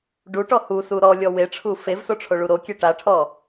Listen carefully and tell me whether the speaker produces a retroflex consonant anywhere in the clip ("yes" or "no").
yes